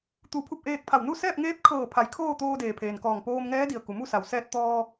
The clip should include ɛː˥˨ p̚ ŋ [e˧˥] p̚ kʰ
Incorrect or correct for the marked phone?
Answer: incorrect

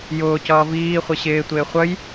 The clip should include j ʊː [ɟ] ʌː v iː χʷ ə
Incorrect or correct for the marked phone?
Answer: incorrect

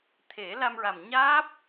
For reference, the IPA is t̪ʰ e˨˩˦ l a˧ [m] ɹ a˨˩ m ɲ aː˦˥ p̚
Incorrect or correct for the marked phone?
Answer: correct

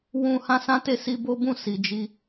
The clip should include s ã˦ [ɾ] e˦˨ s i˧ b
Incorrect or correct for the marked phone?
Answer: incorrect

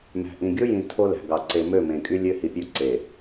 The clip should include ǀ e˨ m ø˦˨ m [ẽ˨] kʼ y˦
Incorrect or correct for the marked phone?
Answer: correct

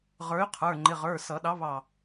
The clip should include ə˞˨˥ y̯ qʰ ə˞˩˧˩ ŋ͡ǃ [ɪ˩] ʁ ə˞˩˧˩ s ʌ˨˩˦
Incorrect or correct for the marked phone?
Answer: incorrect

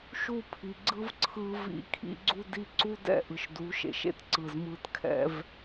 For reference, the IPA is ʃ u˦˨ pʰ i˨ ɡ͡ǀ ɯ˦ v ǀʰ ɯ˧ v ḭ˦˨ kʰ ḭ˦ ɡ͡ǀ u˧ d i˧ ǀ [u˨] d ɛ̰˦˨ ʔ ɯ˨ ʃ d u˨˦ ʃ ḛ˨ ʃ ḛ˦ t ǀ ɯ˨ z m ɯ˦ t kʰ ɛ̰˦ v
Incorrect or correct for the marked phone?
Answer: incorrect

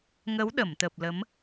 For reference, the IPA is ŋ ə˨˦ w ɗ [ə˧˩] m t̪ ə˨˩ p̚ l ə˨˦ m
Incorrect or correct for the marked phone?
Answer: correct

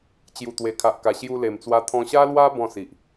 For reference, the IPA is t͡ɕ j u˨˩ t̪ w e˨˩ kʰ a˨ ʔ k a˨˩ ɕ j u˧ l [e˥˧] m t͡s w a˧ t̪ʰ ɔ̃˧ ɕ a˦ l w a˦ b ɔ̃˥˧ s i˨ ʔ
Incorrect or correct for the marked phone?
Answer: incorrect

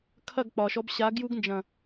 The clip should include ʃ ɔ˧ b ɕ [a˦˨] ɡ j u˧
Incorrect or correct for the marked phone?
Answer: incorrect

